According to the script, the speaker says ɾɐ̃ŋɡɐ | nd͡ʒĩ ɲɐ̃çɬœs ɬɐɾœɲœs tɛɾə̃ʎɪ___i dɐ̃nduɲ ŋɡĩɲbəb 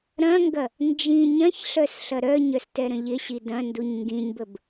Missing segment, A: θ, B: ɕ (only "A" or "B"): B